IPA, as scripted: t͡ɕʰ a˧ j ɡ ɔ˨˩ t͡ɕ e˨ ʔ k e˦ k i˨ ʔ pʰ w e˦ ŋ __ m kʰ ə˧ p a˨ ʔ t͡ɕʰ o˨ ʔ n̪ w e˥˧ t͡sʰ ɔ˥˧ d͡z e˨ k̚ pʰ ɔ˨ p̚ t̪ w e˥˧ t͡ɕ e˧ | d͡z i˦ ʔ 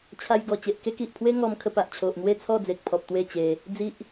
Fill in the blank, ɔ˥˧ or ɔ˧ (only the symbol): ɔ˧